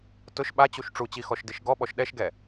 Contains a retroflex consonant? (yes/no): yes